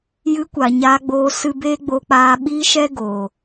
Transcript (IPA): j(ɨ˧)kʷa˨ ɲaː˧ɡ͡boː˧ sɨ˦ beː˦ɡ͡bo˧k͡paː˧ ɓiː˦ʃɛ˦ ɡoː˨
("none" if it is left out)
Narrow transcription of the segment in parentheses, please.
ɨ˧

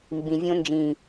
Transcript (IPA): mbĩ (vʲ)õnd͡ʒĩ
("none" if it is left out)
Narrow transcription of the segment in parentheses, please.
vʲ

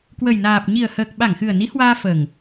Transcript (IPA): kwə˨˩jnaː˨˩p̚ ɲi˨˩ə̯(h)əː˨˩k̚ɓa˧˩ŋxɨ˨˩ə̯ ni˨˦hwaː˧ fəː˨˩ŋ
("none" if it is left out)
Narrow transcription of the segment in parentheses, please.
h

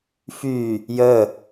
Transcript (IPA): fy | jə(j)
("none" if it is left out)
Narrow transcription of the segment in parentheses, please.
none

